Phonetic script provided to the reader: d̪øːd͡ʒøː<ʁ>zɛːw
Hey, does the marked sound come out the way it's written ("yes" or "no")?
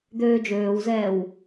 no